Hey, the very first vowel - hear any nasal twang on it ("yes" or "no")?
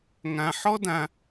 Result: yes